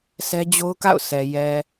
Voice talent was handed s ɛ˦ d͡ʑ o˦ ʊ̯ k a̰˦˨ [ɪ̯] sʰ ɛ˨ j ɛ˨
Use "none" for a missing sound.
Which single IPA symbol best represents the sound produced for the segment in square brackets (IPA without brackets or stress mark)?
ʊ̯